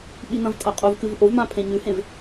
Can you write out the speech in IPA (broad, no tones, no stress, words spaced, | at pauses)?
ɓinɐ̃vtʼɐ qʼuvkɨv ʔovmã pʰẽɲʉhẽv